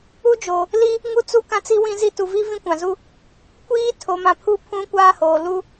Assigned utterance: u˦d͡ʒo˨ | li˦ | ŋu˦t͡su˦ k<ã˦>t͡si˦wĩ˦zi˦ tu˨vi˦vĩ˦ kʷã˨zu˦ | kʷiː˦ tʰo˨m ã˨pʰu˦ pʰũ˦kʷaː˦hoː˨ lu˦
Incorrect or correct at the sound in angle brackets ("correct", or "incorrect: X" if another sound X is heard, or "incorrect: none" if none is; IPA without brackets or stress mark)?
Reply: correct